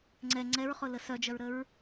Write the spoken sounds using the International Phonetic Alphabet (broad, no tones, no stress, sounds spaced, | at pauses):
ŋ͡ǀ ɛ ŋ͡ǀ ɛ ɹ χ ʊ l ə s œ d͡ʒ œ ɹ ɾ ə ɹ